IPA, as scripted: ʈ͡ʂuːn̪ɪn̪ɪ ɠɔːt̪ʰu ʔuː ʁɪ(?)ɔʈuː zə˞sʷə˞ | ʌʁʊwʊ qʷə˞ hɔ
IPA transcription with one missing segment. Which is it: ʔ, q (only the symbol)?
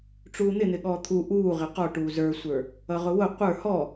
q